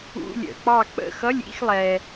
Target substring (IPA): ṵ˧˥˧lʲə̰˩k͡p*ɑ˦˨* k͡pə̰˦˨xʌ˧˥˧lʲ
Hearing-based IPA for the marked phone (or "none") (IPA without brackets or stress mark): ɑ˦˨